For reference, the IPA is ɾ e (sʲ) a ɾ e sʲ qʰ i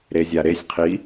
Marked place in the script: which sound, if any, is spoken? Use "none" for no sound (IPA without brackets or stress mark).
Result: zʲ